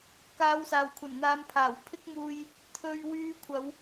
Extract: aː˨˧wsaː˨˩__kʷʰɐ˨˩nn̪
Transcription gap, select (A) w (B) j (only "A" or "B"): A